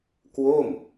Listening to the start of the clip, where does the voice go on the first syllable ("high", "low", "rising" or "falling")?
falling